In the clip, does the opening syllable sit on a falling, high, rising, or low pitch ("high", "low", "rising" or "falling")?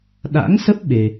rising